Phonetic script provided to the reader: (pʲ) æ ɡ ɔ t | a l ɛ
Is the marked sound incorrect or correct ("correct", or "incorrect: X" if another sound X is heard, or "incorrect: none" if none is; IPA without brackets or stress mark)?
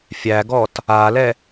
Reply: incorrect: fʲ